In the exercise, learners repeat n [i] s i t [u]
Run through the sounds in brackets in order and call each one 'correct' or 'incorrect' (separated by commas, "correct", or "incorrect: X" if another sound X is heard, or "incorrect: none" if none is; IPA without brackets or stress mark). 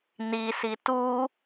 correct, correct